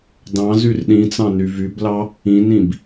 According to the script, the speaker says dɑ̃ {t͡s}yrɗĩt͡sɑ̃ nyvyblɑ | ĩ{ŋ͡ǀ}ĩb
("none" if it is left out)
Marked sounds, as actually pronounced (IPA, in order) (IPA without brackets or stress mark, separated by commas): z, n